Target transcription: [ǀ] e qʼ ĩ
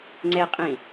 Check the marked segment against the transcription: incorrect: ŋ͡ǀ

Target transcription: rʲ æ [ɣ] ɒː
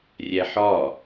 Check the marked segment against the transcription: incorrect: ħ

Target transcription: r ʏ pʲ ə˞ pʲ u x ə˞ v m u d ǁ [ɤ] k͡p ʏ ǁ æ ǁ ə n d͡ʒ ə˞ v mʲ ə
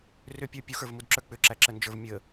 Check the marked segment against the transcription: incorrect: ə˞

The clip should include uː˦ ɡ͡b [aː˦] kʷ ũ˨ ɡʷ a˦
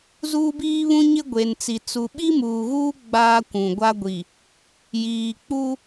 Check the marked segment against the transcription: correct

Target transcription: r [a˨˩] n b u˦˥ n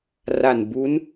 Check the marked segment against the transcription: correct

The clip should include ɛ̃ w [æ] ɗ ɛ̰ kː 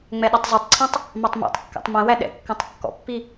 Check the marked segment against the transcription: correct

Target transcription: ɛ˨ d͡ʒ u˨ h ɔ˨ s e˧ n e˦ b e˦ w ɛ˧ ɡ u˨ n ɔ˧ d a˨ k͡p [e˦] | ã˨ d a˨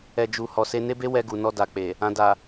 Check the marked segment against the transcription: incorrect: e˨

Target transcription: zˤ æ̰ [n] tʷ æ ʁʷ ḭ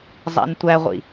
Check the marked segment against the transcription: correct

